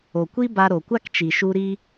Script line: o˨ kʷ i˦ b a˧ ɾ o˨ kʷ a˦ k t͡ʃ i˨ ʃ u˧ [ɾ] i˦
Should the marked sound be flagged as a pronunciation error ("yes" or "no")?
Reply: no